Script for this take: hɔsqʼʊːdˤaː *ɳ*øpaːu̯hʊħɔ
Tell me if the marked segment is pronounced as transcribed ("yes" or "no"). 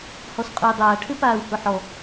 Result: no